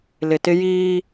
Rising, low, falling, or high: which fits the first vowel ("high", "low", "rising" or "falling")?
low